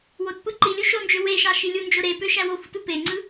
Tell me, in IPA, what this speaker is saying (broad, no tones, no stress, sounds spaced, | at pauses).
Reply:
w o t p ɯ ǃ i lʲ u ʃ o n d͡ʒ ø w e ʃ ɑ ʃ i lʲ u n d͡ʒ o ɾ e p ø ʃ æ w o f u t u p e ŋ͡ǀ ɯ